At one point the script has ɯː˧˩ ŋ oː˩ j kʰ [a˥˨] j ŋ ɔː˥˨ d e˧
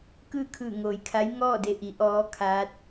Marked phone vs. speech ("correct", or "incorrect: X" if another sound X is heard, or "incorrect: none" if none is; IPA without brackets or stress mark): incorrect: a˧˥